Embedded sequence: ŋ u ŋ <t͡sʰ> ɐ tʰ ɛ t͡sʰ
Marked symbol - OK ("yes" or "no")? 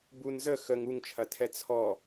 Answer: no